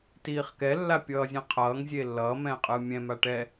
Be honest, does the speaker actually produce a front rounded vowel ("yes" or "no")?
no